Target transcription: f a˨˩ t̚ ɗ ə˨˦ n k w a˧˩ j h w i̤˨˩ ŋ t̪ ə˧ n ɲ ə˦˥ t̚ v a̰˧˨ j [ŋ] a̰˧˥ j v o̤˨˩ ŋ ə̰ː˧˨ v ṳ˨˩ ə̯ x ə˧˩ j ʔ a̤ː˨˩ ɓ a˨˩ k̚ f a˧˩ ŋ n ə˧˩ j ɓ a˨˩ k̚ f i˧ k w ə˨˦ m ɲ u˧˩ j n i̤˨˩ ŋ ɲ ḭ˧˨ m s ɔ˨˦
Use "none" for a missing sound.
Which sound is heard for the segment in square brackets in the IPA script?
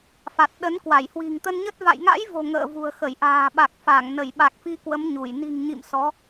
ŋ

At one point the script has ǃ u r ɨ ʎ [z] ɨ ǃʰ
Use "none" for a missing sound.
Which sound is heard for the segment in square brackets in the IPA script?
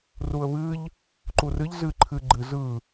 z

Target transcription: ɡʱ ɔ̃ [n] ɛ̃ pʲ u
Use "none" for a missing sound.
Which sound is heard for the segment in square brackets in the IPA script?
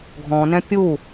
n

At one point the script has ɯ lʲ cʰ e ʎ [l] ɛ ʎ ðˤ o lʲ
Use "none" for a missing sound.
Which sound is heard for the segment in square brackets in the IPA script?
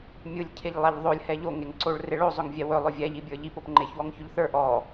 lˠ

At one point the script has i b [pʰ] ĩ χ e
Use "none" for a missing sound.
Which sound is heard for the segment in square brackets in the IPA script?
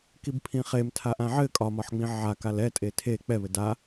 pʰ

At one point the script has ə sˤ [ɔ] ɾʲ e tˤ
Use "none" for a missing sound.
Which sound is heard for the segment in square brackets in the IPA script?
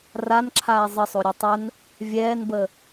o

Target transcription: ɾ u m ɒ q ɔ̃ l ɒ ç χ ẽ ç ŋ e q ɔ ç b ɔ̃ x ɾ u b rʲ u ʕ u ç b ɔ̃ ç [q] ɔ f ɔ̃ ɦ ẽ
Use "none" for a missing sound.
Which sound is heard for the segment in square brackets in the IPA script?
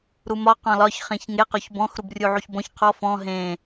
qʰ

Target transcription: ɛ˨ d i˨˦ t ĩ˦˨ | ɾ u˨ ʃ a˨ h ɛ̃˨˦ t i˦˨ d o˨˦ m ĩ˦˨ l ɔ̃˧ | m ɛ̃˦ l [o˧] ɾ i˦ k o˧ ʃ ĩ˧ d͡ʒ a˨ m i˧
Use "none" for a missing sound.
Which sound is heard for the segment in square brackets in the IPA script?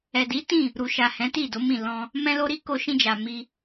o˦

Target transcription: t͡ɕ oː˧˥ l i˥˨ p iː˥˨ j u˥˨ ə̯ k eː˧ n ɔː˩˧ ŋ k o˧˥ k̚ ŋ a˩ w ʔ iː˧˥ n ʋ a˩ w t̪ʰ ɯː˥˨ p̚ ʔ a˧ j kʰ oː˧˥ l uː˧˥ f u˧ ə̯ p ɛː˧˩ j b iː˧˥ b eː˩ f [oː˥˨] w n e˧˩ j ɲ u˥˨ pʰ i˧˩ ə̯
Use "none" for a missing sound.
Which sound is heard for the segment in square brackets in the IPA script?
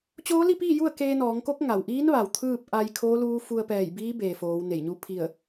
oː˩˧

